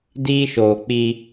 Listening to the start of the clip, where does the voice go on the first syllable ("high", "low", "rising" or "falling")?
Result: high